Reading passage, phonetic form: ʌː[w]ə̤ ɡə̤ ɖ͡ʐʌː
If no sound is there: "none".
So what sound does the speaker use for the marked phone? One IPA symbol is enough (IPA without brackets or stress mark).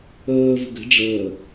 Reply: v